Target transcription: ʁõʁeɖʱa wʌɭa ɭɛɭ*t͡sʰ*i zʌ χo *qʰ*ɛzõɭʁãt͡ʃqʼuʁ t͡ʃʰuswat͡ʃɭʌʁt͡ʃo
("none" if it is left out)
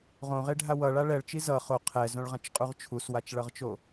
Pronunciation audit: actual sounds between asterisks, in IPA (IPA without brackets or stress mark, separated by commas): t͡ʃ, qʰ